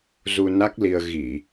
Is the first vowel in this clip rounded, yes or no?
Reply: yes